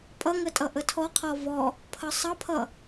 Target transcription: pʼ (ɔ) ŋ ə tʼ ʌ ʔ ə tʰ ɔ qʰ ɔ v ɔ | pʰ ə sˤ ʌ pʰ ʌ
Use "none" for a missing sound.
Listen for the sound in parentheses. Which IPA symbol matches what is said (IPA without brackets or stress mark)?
ʌ